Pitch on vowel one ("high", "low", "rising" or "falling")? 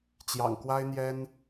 low